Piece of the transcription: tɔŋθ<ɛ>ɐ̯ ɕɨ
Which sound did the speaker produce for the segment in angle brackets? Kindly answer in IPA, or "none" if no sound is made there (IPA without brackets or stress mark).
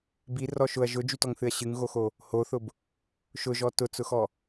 ɨ